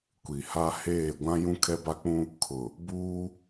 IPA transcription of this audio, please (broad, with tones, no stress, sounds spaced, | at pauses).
kʷ i˨ h a˦ h eː˦˨ ɡʷ ã˦ j ũ˦ kʰ ɛ˦ b a˦ k͡p ũ˦ | kʰ ʊ˨ | b uː˦